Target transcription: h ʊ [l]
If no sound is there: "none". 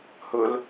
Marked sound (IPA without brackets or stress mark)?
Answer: l